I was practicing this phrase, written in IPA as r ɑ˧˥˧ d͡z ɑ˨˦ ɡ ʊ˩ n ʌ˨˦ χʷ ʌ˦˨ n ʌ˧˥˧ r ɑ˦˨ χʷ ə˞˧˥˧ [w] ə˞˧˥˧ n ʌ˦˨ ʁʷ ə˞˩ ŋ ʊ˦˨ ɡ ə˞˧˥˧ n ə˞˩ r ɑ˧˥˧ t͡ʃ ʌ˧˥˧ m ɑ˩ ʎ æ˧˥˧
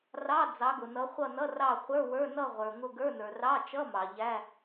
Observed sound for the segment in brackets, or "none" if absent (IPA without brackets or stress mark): w